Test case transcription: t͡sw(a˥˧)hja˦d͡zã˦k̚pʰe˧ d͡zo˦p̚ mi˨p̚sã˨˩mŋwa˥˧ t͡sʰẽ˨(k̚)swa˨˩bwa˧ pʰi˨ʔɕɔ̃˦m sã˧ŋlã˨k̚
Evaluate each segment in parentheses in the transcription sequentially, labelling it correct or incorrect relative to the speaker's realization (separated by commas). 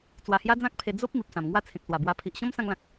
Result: incorrect, correct